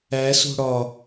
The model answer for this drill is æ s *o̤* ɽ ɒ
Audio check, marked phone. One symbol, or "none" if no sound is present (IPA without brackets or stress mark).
o̤